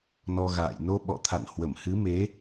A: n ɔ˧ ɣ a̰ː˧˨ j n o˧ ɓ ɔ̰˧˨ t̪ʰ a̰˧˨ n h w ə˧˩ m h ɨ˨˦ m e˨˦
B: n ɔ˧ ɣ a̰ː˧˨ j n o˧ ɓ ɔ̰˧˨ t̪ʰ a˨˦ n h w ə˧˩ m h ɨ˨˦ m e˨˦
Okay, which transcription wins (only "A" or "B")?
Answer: A